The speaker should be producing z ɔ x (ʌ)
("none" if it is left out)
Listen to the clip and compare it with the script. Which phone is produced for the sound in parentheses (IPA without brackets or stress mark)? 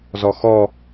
ɔ